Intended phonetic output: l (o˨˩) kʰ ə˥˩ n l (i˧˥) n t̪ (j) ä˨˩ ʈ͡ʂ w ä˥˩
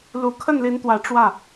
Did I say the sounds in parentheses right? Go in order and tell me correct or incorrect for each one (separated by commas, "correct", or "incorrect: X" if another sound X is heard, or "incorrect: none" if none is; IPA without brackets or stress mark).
incorrect: u˨˩, correct, incorrect: w